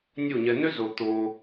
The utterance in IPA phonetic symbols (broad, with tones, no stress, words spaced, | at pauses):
nʲu˦˨ɲɛ˧ nø˦zo˨ t̪o˧